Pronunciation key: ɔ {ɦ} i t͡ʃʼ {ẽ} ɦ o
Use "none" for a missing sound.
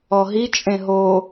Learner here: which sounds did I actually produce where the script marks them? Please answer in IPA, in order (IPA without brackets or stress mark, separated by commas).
ɦ, ẽ